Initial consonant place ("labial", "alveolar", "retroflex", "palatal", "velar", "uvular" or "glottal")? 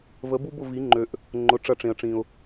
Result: labial